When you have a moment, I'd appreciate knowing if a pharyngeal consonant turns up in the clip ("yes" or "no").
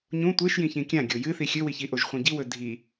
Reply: no